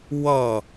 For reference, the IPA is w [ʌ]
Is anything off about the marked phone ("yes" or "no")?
no